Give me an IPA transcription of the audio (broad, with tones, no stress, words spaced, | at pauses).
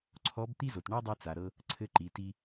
ǀʰɔ˧˥b t̪i˥zo˩t ɳɔ˥dˤi˧ t͡sa˩ ɾɤ˧ | ǀʰɘ˧˥ǃi˩˧ti˧